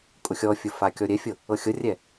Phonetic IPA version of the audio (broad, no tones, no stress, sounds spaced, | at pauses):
kʼ ʊ xʲ ɔ fʲ ʊ f a kʲ ɔ ɾʲ ɛ fʲ ɤ | ɤ xʲ ɤ rʲ ɛ